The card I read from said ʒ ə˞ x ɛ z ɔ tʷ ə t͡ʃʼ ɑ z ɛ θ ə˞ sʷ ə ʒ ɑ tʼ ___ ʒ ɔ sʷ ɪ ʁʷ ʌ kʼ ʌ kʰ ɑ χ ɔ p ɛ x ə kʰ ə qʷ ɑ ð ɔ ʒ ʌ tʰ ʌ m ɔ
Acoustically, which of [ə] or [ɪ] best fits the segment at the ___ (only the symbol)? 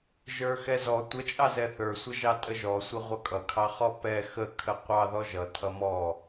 ə